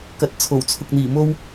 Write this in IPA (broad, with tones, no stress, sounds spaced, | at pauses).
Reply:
k ɐ˧ t̚ t͡sʰ o˨˩ w t͡sʰ ʊ˧ k̚ n̪ iː˨˩ m o˥ w